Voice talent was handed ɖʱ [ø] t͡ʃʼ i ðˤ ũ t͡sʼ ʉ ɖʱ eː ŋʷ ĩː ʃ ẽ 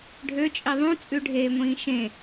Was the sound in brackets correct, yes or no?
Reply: yes